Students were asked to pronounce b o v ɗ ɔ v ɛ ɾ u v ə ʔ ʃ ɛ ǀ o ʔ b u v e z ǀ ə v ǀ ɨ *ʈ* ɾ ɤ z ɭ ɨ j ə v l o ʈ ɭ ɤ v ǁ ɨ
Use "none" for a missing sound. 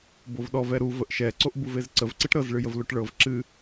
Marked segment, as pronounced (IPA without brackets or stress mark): ʈ